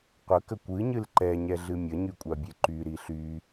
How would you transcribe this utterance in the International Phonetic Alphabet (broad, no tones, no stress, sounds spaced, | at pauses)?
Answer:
qʷ ə k ə kʷ ɨ ɲ ɨ l ǃ ɛ ɲ ɛ ɮ ɨ mʲ ə ɲ y kʷʼ a bʲ e ǃ y ɾ i ɬ y